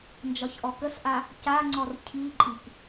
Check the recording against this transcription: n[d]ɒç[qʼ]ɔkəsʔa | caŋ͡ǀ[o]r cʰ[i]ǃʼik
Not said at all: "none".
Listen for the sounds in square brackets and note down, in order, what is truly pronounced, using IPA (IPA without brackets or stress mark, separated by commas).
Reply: d͡ʒ, ʔ, ɔ, i